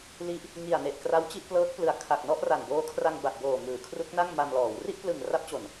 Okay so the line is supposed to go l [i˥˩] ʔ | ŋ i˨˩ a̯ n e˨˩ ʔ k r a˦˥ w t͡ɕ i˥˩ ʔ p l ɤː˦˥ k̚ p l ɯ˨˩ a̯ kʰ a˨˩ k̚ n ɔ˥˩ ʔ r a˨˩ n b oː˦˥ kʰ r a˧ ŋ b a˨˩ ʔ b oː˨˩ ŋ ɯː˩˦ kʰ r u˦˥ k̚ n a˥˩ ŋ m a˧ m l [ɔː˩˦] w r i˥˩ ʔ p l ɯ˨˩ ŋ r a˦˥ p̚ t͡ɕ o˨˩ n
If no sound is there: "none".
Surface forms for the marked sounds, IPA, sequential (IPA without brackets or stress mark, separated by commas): i˦˥, ɔː˩˦